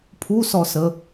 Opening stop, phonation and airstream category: aspirated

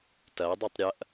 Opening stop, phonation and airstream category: plain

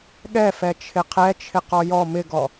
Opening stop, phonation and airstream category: implosive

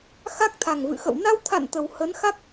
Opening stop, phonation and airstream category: plain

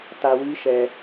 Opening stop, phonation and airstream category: plain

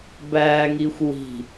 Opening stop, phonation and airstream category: plain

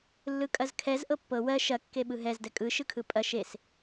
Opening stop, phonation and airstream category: ejective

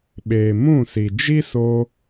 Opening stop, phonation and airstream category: implosive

